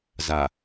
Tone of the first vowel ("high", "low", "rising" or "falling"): low